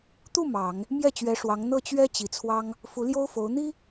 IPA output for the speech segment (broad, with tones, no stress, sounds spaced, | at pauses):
t̪ u˥˩ m ɑ˨˩˦ ŋ | m j ɛ˥˩ t͡ɕ ɥ ɛ˧˥ ʂ w ɑ˧˥ ŋ n̪ ɤ˥˩ t͡ɕ ɥ ɛ˥ t͡ɕ i˨˩ t͡sʰ w ɑ˥ ŋ | f u˧˥ l j o˥ ʊ̯ f o˧˥ ʊ̯ n̪ i˥